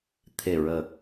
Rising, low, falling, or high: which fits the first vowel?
low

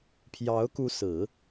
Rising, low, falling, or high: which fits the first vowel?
rising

